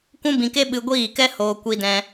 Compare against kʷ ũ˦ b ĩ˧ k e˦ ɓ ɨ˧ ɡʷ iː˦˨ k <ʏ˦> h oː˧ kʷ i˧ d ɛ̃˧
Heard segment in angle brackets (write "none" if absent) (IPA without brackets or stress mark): ɛ˦